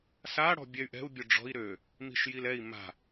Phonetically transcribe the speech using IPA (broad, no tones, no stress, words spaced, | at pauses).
sa ɽɔ̤bʲɛy̯ʔɛ̤u̯ bʲʊɖ͡ʐɔ̤i̯ ɾø | mi̤ʃjilɛi̯ ma̤